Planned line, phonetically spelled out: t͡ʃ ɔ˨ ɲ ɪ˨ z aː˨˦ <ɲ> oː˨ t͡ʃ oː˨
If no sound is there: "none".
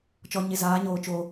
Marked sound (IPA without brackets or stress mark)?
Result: ɲ